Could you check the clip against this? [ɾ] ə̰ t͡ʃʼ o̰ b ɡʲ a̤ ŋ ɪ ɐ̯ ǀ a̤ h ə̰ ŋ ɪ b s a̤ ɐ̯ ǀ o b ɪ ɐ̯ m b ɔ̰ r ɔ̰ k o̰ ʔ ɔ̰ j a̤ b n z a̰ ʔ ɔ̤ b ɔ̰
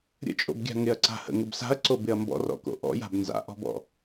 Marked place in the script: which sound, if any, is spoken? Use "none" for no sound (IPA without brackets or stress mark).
ɾʲ